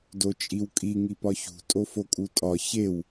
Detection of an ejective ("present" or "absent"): present